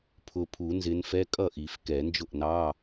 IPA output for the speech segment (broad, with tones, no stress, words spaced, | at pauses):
pʰʊ˨˩ pʰu˨˩˦nzɪ˨˦nfɛ˧˥˧ kʼʌ˥˩ʔi˨˩˦fkɛ˨˩˦nd͡ʒʊ˥˩ʔ nɑ˧˥˧